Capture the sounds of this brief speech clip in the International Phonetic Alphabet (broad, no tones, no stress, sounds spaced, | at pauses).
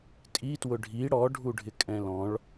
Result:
tʼ i t w ʊ ɖʱ i ɽ ɔ ɖʱ u ɖʱ ɪ kʼ ɛ̃ l ɔ̃ ɭ